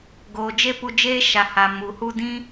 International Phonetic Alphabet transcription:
ɡ oː˨ d͡ʒ e˦ p u˧ d͡ʒ eː˦ ʃ a˨ h a˨ m u˨ h u˦ d ĩ˦

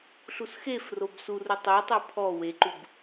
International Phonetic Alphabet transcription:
ɬ u s x e f r o b s u r u tˤ u tˤ ɯ pʰ ɔ w e ǃ u b

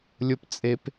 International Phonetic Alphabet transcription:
lʲ ʊ p t͡sʼ e p

